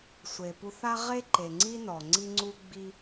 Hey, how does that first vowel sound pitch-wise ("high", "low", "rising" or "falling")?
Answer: low